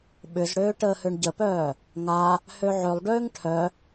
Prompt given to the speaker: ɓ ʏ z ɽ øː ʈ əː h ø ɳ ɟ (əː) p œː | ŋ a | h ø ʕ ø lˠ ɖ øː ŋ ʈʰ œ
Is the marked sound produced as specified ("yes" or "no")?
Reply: no